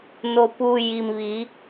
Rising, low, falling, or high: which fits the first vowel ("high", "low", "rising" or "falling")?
low